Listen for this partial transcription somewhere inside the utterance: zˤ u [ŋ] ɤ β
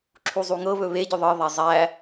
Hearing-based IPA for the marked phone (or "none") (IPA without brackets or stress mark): ŋ